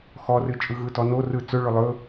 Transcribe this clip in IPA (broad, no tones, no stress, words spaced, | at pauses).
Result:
xɔrɨ t͡ʃʼɯɣɯtɔno rɯ t͡sɵɭɵ lˠɵ